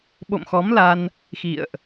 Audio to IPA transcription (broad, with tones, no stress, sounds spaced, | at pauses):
ɓ o̰˧˨ m x ɔ˨˦ m l a˧ n | x ḭ˧˨ ə̯ ʔ